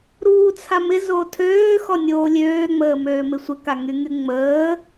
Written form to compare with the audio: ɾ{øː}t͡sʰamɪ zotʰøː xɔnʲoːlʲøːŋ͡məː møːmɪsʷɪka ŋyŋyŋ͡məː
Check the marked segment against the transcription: incorrect: uː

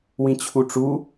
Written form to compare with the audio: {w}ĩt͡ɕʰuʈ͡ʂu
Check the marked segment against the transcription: correct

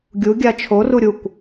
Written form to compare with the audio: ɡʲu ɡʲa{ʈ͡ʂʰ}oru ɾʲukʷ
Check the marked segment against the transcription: incorrect: t͡ʃʰ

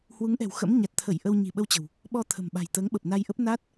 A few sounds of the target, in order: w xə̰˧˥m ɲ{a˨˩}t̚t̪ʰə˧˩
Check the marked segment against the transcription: correct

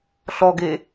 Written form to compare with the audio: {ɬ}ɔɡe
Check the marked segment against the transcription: correct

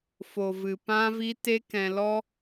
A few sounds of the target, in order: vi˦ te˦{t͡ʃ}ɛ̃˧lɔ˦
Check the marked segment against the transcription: incorrect: k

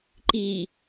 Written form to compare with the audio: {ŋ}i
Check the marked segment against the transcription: incorrect: ǃ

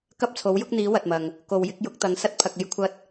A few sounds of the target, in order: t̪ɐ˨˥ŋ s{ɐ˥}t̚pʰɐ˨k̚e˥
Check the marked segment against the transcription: correct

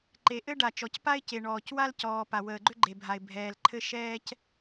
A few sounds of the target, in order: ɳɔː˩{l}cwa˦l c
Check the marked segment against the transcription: incorrect: none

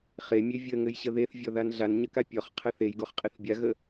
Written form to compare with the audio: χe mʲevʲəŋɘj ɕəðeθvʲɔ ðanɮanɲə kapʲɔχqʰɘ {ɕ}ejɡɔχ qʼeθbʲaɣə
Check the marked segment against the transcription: incorrect: θ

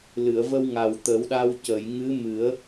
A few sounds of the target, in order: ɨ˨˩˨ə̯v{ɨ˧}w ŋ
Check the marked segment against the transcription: incorrect: ə˧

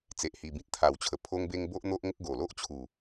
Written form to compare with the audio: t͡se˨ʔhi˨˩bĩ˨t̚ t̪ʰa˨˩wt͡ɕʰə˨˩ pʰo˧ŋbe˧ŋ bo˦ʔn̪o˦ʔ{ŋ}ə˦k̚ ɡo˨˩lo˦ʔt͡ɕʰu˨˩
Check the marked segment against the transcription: correct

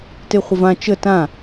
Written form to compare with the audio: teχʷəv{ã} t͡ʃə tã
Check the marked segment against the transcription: correct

